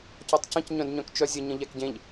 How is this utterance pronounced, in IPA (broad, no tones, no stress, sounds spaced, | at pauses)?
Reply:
c ɔ tˤ c ə̃ c ɲ œ̃ d ɲ œ̃ k t͡ʃ œ zʲ ə ɲ ə̃ ʎ ɛ k ɟ ẽ ʎ